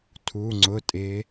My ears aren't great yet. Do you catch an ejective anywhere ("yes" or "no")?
yes